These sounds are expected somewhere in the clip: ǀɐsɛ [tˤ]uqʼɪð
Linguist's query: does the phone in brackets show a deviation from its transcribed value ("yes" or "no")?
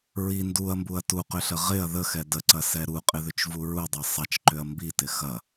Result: yes